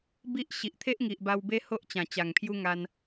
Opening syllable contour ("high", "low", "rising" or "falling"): high